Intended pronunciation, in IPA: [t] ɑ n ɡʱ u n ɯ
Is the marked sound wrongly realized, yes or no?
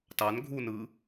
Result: no